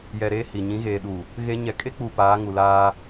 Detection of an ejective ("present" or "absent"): present